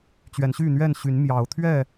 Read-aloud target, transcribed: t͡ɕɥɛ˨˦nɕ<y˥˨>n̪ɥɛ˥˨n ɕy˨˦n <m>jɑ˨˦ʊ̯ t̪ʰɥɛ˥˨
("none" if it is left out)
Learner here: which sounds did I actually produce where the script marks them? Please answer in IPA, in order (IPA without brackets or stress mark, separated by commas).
y˥˨, m